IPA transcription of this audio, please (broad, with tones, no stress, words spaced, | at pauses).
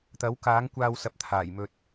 t̪ɐ˨˥w kaː˨˥ŋkʷaː˧w sɐ˨˥p̚t̪ʰaː˨˩jmɵ˧t̚